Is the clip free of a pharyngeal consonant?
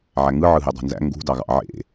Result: no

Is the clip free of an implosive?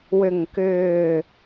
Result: yes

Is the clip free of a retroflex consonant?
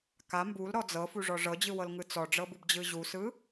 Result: no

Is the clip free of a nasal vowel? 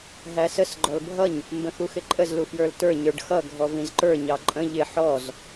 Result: no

